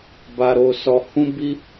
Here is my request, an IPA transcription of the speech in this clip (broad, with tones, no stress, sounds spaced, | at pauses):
b a˧ ɾ o˧ s ɔ˧ h ũ˦ b i˦